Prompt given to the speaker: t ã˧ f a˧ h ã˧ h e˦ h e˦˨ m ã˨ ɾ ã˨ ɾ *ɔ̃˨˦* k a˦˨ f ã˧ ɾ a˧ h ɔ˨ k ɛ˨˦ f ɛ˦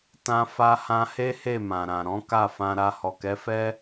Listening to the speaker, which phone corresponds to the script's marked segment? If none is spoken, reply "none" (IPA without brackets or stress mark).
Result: ɔ̃˨˦